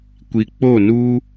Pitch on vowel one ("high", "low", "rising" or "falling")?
low